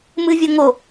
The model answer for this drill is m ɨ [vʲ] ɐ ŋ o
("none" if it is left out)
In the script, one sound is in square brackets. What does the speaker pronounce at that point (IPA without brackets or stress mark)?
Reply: vʲ